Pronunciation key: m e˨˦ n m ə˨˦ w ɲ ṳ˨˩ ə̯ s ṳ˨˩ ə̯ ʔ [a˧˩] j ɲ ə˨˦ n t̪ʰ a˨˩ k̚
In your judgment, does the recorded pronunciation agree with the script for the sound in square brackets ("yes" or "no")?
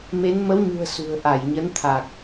yes